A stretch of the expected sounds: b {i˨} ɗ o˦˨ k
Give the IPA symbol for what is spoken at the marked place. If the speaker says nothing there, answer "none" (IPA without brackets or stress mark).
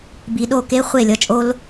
i˨